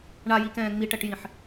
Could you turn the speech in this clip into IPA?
ɳ a j i k ɛ̃ː ŋ͡m i ʈ ɛ ʈ j ĩ ħ

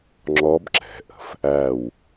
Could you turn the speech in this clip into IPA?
ŋ͡ǁ ɔ˦˥ b ǁ ɛ̤˩˧ ʔ ə̤˩˧ f | æ˦˨ w

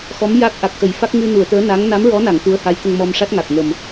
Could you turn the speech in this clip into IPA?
x ɔ˧˥ m j a˦˥ k̚ ʔ a˨˩ k̚ x ə˨˩˦ j f a˦˥ k̚ ŋ ɨ˧ n u˨˩˨ ə̯ t̪ əː˧˥ n a˧˥ ŋ n a˧˥ m ɹ ɔ˧˥ n a˨˩˨ ŋ t̪ u˧˥ ə̯ h a˧˥ j t̪ ə˧ ŋ m ɔ˧ m ʂ a˦˥ t̚ ŋ a˨˩ k̚ ŋ ə˨˩ m

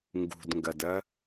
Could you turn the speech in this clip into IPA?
ŋ ɡ ṳ d ŋ ɡ ɐ d ɐ

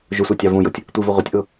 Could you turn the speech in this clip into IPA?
ʒ ʊ sʷ æ tʲ ɑ v ũ j ʊ tʲ | tʷ i v u ʁʷ ɪ tʲ ʔ ʊ

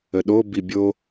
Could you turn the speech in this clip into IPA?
ə ɗ o b i bʲ o

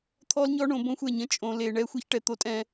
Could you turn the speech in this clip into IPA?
t̪ʰ ɔ˦ l ɲ ɔ˦ ɳ õ˨˦ b õ˦ xʷ ɛ˦˨ ɲ ə̃˦ t͡ʃʼ õ˨ l e˨ ɳ ɛ˦ xʷ e˦ ç ʈ ɛ˨ t̪ o˦ tʼ ɛ̃˦

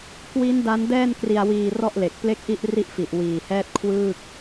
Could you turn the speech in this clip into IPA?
k w i˦˥ n d a˦˥ n d ɛː˥˩ n k r i˧ a̯ w iː˧ r ɔ˥˩ ʔ l e˨˩ k̚ p l e˥˩ k̚ ʔ i˥˩ ʔ r i˥˩ ʔ f i˨˩ ʔ w iː˨˩ h ɛː˥˩ t̚ kʰ w ɯː˥˩ k̚

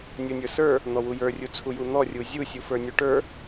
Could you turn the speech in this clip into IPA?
nʲ u nʲ ə˞ s ə˞ | n̪ ɔ w u j ə˞ rʲ u t͡sʰ u j u n̪ ɔ rʲ u zʲ u sʲ u f ə˞ nʲ u ʈ ə˞

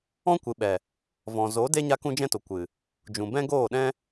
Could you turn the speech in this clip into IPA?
ɔ̃˦ kʷ ɨ˨ ɓ ɛ˨ | v ɔ̃˨ z o˨˦ d e˦ ɲ a˦ k ũ˦ d͡ʒ ɛ̃˦ t o˨ kʷ ɨ˨ | d͡ʒ ũ˨ b ɛ̃˦ ɡ oː˦˨ ɗ ɛ̃˦

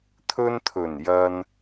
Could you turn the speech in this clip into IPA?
t̪ʰ ɵ˧ n t̪ʰ ɵ˨˩ n j ɐ˧ n

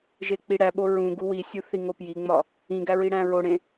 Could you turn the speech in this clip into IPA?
ʒ e k͡p i ɽ æ ɓ o ɹ ũ ɡ u w i sʲ u θ i ŋ o p j i ŋ͡m ɒ | ĩ ɡ æ ɹ i ɽ æ̃ ɹ o ɽ ẽ

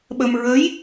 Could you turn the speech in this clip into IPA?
ɓ ə˧ m ɹ ə˧˥ j

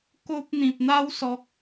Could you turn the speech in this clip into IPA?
k o˦ p̚ n̪ ĩ˨ p̚ n̪ a˦ w s ɔ˨ k̚

